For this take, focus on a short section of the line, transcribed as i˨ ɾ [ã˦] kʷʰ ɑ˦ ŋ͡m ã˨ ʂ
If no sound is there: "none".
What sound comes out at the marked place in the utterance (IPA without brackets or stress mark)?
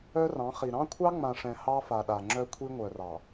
ɑ̃˦